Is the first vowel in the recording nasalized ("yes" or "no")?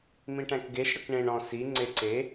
yes